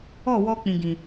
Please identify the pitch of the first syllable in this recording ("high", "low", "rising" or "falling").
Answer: falling